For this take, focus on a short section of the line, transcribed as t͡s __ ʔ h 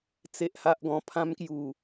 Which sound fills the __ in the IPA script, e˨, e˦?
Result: e˨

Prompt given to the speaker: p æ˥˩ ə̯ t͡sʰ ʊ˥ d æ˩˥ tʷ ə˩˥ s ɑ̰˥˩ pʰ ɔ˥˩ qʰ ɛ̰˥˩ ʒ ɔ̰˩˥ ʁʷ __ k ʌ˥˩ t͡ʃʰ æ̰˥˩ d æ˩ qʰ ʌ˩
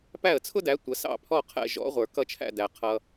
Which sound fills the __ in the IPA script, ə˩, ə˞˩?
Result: ə˞˩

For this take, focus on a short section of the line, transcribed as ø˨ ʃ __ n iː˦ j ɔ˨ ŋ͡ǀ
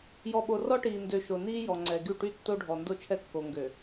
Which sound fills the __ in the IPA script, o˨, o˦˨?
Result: o˨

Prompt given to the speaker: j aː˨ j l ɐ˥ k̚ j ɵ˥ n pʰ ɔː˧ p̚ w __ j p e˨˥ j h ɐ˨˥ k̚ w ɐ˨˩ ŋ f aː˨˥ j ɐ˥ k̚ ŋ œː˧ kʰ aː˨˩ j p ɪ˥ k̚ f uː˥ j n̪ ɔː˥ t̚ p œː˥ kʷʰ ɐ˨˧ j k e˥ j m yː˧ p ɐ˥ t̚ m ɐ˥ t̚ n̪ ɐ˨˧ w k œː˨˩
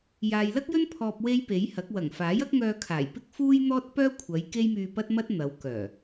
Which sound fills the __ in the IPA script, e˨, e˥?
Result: e˥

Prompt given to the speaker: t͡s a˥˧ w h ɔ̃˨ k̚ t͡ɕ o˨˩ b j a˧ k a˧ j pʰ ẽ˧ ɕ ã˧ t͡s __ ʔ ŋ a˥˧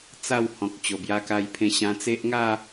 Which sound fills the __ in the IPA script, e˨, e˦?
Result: e˦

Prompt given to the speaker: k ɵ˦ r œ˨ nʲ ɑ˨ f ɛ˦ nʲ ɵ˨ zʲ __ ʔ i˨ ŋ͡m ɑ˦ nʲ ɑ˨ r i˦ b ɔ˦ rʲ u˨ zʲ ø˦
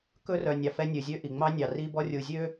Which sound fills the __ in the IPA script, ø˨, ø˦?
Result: ø˦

